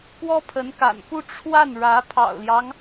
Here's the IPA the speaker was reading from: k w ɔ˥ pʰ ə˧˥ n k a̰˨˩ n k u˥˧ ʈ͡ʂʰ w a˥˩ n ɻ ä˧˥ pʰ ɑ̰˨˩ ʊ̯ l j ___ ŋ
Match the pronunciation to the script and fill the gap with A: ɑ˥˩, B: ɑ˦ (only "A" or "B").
B